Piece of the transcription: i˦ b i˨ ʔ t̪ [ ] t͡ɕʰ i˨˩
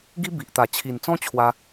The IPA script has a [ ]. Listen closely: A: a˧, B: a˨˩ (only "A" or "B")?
B